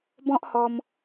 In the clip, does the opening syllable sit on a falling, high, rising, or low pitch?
high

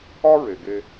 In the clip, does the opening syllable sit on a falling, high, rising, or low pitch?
high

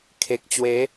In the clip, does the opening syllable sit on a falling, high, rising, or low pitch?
low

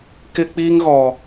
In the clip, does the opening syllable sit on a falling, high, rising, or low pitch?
high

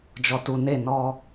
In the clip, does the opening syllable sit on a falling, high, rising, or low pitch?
low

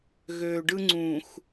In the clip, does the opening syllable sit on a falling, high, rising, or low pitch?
low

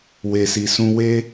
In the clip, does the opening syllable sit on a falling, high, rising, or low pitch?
low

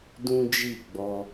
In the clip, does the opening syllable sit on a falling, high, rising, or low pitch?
high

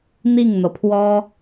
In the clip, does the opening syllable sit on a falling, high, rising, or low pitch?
falling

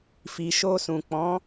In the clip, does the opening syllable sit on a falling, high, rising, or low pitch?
low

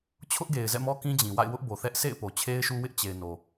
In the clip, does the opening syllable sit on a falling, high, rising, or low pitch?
high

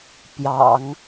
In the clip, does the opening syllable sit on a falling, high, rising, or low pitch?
low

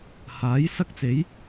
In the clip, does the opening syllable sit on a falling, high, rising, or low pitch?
rising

